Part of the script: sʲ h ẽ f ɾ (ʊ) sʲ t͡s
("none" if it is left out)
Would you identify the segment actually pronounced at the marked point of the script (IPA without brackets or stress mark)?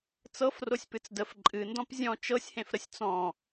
ə